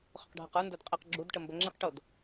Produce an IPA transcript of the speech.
χ ʊ q ɖʱ ɤ q ə˞ n d ə˞ d qʼ e q ɡ͡ǁ u d ʈ ə m b ə ŋ͡ǁ i q ʈ o d

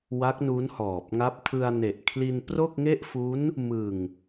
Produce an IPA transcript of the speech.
w a˦˥ k̚ n u˦˥ n h ɔː˨˩ p̚ ŋ a˦˥ p̚ tʰ ɯ˧ a̯ n e˨˩ ʔ kʰ l i˧ n p r o˥˩ k̚ ŋ e˥˩ ʔ f u˦˥ n | m ɯ˨˩ ŋ

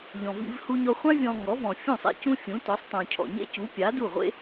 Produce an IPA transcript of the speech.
ʎ ɔ̃˩ v ḭ˧ v h u˧ ɲ ɔ˧ χʷ ã˥ vʲ ɔ̃˧ ŋ ɔ˩˥ v ɔ̃˩ fʲ ũ˥˩ sˤ ḛ˥ c ũ˥ fʲ ũ˩˥ t ɔ˩˥ sˤ tˤ ũ˩ cʰ ɔ̰˩ ɲ ḛ˥ c u˩˥ pʲ a˩˥ d u˥˩ ʁʷ ḛ˥

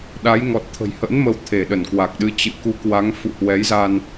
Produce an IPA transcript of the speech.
ɗ a˨˦ j ŋ ɔ˨˩ t̚ t̪ʰ ə̤˨˩ j h ə̰˧˥ n m ə˨˦ w t̪ʰ e˧˩ ɗ ə˧˩ n k w a˨˩ k̚ ɗ ɨ˨˦ t͡ɕ ɨ̰˧˨ k u˨˦ k w a˨˦ ŋ f ṵ˧˨ h w ɛ˨˦ j z a˧ n

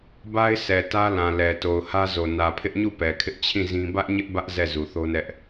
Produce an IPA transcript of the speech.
b a˦ ɪ̯ s ɛ˨ t ä˦ l ã˨ l ɛ˨ t o˨ ʊ̯ h ä˦ z o˨ n ä˨ pʰ ɪ˦ ʔ ɲ u˦˨ p ɛ˨ kʰ ɪ˦ ʔ t͡ɕʰ ĩ˦˨ z ĩ˦ b ä˦ ʔ ɲ ɪ˦ ʔ b ä˦ ʔ z ɛ˦˨ z u˨ θ o˦ n ɛ˦ ʔ

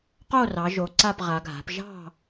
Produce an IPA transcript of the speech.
q o˥˨ r ɑ˩˧ ʒ o˩˧ ǀ a˥˨ p ʁ a˩˧ ɡʱ a̤˩˧ p ʒ ɑ̤˥˨

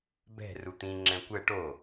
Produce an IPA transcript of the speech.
b ɛ̤ r u t̪ ĩ ŋ͡ǁ ɛ̃ kʷ ɛ ʈ o

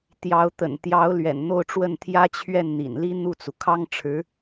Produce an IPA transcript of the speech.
t̪ j ɑ˧˥ ʊ̯ t̪ ə̰˨˩ n t̪ j ɑ˧˥ ʊ̯ l ɥ ɛ̰˨˩ n n̪ o˥˧ ʊ̯ ʈ͡ʂ w ə˥˩ n t̪ʰ j ä˥ t͡ɕʰ ɥ ɛ˥˩ n n̪ ḭ˨˩ n l i˥ n̪ u˥˩ t͡s u˩ kʰ ɑ˥ ŋ ʈ͡ʂʰ ɻ̩˧˥

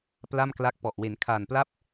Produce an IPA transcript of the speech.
p l a˥˩ m k l a˦˥ k̚ p ɔ˨˩ ʔ w e˩˦ n kʰ aː˨˩ n p l a˥˩ p̚

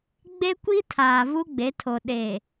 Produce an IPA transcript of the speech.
ɡ͡b e˦ kʷ i˦ tʰ aː˨ v u˦ ɡ͡b e˨˦ tʰ o˨ ɗ e˨

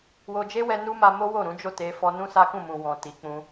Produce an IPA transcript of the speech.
w o˧ d͡ʒ e˦ w ɛ˧ n u˦ m a˧ m o˦ w o˦˨ ɾ ũ˨˦ d͡ʒ o˦˨ t e˧ f ɔ˧ n ũ˦ s a˦ k ũ˦˨ m ũ˨ w ɔ̃˨ t i˨ k͡p ũ˧

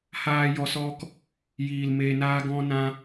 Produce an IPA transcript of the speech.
h aː˧ j ɔ˧ s ɔ˦ k | j iː˨ l m eː˨ n aː˧ ɡ ɔ̃˧ n ã˧

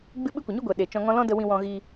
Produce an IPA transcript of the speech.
ɡ͡b ɨ˦ ɓ ɨ˦ kʷ ə˨ ɲ u˦ ɡʷ ɛ˨ ɗ e˨ t͡ʃ ɔ̃˧ ŋ ɔ̃˦ l ɔ̃˦ d ə˧ w ĩ˧ w ɔ̃˧ ɣ iː˧

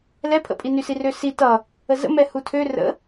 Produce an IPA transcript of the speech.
l ɛ pʰ ə̰ pʼ i n y s i r ø s i t ʌ | ə z ə̰ m ɛ h u tʰ ø r ə̰

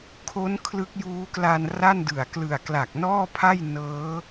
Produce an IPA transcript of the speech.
kʰ o˦˥ n kʰ l ɯ˦˥ k̚ j uː˦˥ k l a˧ n r a˥˩ n d ɯ˨˩ a̯ k l ɯ˨˩ a̯ k l a˨˩ k̚ n ɔː˥˩ pʰ a˥˩ j n ɤː˦˥

